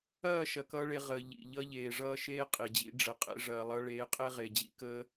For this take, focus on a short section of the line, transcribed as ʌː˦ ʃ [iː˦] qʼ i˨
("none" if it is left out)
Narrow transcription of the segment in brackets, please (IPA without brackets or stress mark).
eː˦